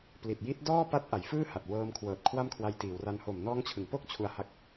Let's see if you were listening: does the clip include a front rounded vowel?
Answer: no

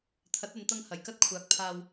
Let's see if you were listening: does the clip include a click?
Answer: no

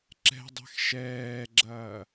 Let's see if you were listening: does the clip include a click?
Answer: yes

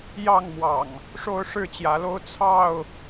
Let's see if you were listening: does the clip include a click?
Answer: no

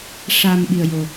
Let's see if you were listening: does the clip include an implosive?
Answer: yes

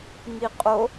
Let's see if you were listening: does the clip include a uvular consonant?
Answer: yes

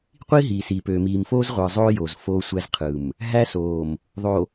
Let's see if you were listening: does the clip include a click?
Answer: no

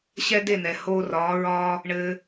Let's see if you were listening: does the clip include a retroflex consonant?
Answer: yes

